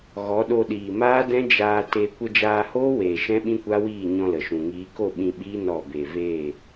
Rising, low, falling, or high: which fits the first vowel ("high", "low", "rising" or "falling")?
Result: rising